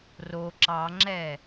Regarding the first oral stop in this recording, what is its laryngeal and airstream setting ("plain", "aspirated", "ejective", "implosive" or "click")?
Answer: click